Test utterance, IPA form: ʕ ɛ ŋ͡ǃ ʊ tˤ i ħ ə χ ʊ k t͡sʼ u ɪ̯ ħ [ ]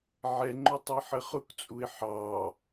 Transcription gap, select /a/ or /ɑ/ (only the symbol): ɑ